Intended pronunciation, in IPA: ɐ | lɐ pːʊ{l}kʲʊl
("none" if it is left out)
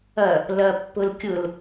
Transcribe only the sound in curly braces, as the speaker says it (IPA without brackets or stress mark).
l